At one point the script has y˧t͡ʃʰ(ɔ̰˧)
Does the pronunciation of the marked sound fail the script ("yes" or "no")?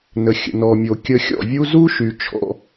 yes